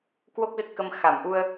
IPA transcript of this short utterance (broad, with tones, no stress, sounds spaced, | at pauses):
k w o˦˥ k̚ z ə˦˥ t̚ k ə˧ m x a˧˩ m ʔ u˧ ə̯